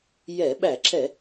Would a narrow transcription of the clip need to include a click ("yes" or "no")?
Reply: yes